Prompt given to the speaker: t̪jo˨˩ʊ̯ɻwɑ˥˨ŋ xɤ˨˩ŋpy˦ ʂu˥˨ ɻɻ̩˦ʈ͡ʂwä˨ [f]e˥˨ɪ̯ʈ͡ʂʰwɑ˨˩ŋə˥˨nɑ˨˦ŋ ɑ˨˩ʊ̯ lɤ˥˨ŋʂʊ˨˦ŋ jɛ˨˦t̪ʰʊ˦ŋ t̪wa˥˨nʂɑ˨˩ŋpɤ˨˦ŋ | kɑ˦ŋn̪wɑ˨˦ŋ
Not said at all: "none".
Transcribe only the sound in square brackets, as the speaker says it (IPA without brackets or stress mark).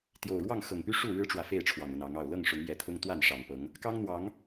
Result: f